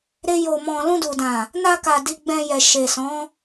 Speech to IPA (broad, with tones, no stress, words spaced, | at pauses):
ɾe˦jo˧mɔ̃˧ lũ˧du˨dã˨ | na˧ka˨ di˧ɡ͡bɛ̃˧jɛ˨ ʃe˨sɔ̃˨˦